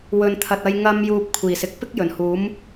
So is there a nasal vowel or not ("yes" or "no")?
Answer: no